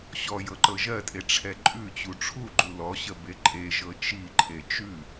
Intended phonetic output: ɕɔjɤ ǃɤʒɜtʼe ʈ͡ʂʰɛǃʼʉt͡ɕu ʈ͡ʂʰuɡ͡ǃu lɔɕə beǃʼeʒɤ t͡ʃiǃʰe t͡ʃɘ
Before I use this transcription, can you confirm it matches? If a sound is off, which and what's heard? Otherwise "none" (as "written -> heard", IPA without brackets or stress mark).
ɘ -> ʉ